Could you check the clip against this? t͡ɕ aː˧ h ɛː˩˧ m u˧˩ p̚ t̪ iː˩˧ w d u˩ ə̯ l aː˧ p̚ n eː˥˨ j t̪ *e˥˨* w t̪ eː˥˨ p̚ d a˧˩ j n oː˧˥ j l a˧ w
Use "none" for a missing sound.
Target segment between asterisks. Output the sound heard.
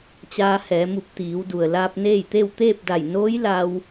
e˥˨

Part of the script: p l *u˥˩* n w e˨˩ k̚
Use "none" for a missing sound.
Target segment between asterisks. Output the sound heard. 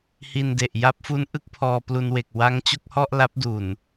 u˧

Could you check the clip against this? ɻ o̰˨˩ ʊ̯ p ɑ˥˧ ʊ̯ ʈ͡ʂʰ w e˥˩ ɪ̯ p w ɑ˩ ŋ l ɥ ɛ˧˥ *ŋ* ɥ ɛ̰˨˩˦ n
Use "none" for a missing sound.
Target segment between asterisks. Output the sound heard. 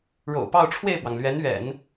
n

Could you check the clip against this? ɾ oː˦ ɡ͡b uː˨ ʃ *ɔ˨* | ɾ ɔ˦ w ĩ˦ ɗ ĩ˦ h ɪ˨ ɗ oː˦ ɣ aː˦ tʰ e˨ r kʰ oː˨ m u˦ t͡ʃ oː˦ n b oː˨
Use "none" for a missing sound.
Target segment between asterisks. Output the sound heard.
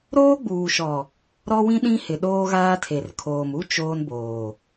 ɔ˨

